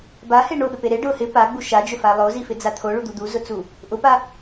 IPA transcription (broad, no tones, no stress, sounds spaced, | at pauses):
b a h e ɳ o ɓ ɪ p e ɾ e ɖ ʊ h ɪ p a ɡ͡b u ʃ a d͡ʒ ʊ f a lˠ o z i f ɪ d͡z a t̪ʰ o ɭ u d̪ u d̪ u z ʊ t͡s u | ʔ ʊ p a